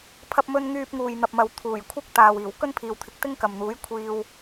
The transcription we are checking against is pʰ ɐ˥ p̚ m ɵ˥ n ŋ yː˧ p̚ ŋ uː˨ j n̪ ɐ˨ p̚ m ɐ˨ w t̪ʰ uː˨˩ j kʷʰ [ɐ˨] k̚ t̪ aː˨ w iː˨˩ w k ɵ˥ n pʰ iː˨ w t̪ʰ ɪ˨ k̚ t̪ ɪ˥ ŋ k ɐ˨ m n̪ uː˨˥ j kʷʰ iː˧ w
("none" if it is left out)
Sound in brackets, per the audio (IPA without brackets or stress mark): ɐ˥